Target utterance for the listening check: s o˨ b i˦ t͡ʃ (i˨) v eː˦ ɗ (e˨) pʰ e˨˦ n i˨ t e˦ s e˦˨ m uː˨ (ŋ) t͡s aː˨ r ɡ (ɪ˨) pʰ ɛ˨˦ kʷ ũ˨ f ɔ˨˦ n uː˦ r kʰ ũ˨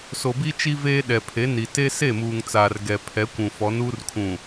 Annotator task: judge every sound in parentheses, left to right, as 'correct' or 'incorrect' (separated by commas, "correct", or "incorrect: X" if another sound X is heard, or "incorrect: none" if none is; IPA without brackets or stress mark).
incorrect: i˦, incorrect: ɛ˨, correct, incorrect: ɛ˨